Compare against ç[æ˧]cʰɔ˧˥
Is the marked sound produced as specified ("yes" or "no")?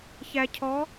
yes